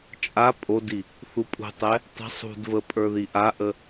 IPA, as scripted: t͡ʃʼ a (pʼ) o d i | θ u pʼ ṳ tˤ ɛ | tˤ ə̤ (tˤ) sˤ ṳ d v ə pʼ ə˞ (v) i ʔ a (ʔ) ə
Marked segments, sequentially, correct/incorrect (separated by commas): correct, incorrect, incorrect, correct